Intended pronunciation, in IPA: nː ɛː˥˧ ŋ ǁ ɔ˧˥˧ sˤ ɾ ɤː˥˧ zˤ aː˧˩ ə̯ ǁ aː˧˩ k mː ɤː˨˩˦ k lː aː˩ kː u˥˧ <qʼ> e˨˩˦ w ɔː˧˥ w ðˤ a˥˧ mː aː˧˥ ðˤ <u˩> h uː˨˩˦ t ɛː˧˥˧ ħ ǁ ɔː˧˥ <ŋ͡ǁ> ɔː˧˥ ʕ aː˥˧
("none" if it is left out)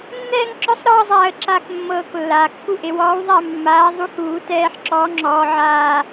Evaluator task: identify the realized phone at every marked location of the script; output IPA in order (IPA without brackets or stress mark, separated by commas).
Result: ʔ, u˧˥, ŋ͡ǁ